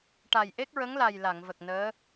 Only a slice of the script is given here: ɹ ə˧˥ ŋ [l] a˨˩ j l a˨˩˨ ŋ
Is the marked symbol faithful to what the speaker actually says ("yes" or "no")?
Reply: yes